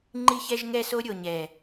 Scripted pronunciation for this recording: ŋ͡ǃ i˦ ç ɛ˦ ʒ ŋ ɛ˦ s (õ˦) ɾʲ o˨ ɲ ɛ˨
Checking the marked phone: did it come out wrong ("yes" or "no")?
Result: yes